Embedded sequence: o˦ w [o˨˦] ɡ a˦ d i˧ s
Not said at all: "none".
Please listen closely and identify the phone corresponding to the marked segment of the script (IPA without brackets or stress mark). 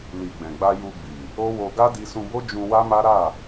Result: o˧